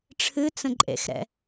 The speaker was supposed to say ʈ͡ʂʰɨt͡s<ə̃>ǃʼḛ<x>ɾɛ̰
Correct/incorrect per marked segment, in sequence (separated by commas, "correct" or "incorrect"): correct, correct